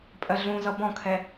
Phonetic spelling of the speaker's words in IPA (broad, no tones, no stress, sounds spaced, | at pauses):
pʼ ɜ ɮ ũ z ʌ b ɔ̃ kʰ ɛ